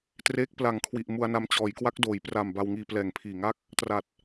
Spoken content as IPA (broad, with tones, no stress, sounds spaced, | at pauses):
t r eː˦˥ k̚ p l a˨˩ ŋ kʰ w i˨˩ ʔ m u˧ a̯ n a˧ m t͡ɕ ɔː˩˦ j k w a˦˥ k̚ d oː˩˦ j p r a˨˩ m b a˧ w ŋ iː˧ p l ɛː˨˩ ŋ pʰ iː˨˩ ŋ a˥˩ k̚ | t r a˨˩ t̚